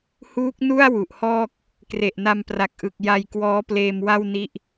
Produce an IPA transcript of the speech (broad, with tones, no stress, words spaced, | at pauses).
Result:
huː˦˥k̚nu˥˩a̯ wu˨˩ʔhɔː˥˩k̚ | kre˨˩ʔna˧mpra˨˩k̚ ʔɯ˨˩k̚ ja˧jkwɔː˦˥pleː˧m wa˥˩wni˦˥ʔ